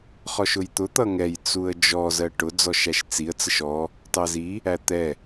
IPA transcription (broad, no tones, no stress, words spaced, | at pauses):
χɔʃʊjt̪ʊ t̪ʌŋɛj t͡suə̯d͡ʒɔ zɜʈʊ d͡zɔʃæʃt͡siə̯ t͡səʃɔ | tɑzi | æt̪ɛ